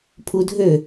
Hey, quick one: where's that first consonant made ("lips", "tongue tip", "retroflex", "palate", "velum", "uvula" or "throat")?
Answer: lips